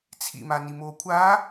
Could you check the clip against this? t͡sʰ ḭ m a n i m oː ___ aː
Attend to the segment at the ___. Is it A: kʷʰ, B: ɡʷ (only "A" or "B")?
A